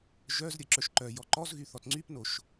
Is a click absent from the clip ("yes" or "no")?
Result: no